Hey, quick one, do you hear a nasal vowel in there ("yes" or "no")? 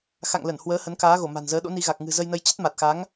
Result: no